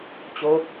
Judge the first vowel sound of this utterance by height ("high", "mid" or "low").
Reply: mid